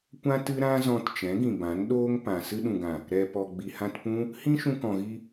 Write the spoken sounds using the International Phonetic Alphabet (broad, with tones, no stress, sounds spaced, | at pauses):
kʷ ã˦ t ɨ˦ ɾ ã˦ z ɔ̃˧ t t͡ʃ ɛ̃˨˦ ɡ ĩ˨ b ã˨˦ n ɗ oː˦ ŋ p ã˨ s ɨ˧ ɗ ũ˨ ɡ ã˨ | ɾ ɛ˨ p ɔ˨ ɡ͡b i˨ h ã˧ t p ũ˦ | h ĩ˦ ʃ ũ˧ k ɔ̃˨ ɣ i˧